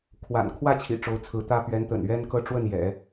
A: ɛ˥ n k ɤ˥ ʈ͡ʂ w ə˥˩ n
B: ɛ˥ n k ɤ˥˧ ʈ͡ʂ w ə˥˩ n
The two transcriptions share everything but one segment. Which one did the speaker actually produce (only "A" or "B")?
B